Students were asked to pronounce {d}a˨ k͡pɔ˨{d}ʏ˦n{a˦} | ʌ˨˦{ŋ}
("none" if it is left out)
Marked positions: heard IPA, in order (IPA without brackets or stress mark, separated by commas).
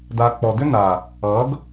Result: d, d, a˨, ɡ